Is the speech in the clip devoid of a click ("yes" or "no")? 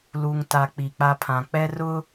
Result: yes